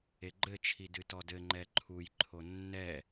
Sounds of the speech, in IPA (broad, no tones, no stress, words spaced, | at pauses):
eɡ͡ǃɘ t͡ʃʰidɨtɔdɘ ŋ͡ǃɛǃʰuj ǃʰonːɛ